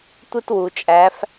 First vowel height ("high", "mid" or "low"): high